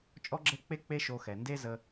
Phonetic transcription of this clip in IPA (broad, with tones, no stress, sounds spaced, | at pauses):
t͡ʃʼ ɔ˦ ɡ͡ǁ ɛ˦ k͡p e˦ k͡p e˦ ʃ o˧ x ɛ˨ n d e˦ z ə˧